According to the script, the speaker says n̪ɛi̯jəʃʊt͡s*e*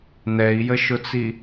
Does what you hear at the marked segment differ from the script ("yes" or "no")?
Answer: yes